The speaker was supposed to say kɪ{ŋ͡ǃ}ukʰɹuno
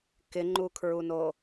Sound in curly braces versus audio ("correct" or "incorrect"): correct